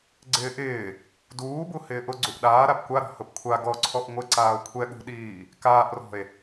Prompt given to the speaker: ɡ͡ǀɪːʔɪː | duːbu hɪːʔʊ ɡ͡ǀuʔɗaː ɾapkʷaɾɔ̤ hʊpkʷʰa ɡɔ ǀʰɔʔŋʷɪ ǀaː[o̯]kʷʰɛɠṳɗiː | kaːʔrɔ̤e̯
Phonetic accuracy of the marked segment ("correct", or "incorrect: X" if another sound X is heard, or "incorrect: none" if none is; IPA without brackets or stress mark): correct